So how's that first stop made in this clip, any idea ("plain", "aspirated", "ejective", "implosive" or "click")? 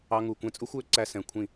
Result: plain